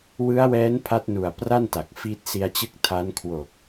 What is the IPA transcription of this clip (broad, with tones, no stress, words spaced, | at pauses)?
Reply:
wɯ˦˥a̯wɛː˦˥n pʰa˦˥t̚nu˨˩a̯pra˥˩n ta˨˩k̚fiː˦˥t̚ si˧a̯t͡ɕɯ˦˥k̚ tʰa˦˥nkʰwo˨˩k̚